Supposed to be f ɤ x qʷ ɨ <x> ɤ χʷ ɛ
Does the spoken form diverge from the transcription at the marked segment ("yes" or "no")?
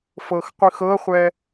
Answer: no